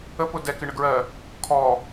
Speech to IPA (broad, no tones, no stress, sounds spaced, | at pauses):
ə p ʊ d ɛ k ɪ ɳ ə ɡ ɹ ɜ | kʰ ɔ